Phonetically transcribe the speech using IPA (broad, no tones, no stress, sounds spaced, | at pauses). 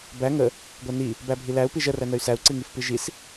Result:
b æ ŋ ə | ɡʷ æ n i | b æ bʱ i l æ u̯ p i ʒ ə r æ n ə y̯ s æ u̯ ǀ i ŋ i f p i ʒ i s